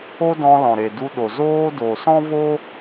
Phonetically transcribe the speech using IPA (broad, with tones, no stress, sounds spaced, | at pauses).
o˦ d ɔ̃˧ l ɔ̃˨ ɾ e˨ d u˧ ɗ o˨ z oː˦ d o˨ s ɔ̃˦ v o˦